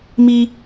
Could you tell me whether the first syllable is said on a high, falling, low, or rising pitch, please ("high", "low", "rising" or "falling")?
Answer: high